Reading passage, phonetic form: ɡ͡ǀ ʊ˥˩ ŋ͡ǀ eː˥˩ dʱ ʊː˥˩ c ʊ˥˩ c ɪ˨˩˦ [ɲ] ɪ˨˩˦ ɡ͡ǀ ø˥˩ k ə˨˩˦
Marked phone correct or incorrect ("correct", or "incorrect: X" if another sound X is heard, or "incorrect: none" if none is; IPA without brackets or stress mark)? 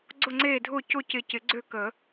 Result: incorrect: c